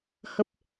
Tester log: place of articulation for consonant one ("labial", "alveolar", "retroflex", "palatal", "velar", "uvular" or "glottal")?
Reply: glottal